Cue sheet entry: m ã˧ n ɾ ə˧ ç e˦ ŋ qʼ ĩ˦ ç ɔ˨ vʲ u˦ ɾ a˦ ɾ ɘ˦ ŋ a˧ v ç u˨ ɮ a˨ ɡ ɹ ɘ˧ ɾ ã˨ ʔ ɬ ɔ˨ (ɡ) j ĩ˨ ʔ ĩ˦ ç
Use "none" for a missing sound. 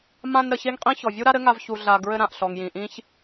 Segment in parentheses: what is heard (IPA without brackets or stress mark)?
ŋ